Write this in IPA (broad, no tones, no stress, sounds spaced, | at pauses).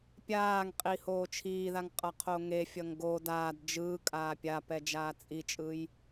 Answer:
pʲ aː ŋ qʼ i h oː t͡ʃʰ iː ð a ŋ qʼ ʌ qʰ o ŋ e fʲ ʌ ŋ ɡ o d aː d d͡ʒ ɯː kʼ aː pʲ a p ɛ d͡ʒ aː t͡sʼ i t͡ʃʼ ɯ j